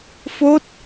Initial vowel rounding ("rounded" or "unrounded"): rounded